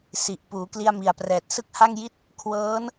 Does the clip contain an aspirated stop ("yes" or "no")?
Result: yes